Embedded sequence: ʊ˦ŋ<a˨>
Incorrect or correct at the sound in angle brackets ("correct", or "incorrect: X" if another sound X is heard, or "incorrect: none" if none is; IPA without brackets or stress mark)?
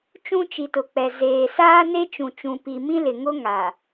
correct